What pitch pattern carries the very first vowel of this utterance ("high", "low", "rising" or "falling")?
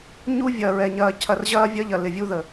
high